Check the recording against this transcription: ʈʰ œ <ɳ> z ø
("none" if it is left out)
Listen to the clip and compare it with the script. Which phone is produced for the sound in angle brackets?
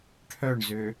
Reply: ɳ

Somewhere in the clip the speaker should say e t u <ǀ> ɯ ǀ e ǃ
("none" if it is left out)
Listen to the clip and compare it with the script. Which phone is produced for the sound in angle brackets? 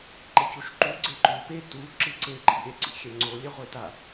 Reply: ǁ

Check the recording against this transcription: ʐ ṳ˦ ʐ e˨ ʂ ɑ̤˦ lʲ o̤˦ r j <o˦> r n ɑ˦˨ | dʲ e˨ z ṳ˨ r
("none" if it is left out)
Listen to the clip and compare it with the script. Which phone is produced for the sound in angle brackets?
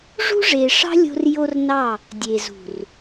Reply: o˦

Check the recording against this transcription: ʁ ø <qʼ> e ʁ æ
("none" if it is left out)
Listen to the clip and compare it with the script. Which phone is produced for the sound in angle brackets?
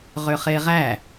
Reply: χ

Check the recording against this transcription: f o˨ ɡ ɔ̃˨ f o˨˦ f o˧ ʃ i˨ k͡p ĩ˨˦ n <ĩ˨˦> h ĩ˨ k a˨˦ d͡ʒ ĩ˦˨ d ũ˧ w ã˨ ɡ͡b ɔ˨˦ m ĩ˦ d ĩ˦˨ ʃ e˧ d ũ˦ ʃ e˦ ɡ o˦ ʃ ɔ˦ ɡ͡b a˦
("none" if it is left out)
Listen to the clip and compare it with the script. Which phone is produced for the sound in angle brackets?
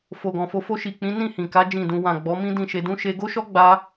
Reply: ĩ˦˨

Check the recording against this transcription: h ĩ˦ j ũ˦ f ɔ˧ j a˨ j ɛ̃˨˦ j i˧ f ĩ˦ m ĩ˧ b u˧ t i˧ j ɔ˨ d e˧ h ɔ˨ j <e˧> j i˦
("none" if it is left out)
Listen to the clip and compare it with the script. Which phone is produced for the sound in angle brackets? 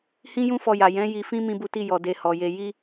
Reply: e˧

